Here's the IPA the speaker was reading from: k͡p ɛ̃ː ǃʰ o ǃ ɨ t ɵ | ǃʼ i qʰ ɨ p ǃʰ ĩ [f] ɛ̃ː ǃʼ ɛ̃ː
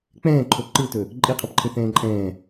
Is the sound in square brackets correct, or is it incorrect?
incorrect